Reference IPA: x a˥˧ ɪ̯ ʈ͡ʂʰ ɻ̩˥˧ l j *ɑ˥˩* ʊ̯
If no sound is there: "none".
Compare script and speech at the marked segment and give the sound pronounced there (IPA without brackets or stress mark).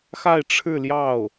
ɑ˥˩